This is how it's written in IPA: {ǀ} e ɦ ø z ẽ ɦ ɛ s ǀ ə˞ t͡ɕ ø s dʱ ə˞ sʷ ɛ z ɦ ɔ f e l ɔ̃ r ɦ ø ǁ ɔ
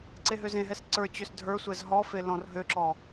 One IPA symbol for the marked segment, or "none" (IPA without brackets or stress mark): ǀ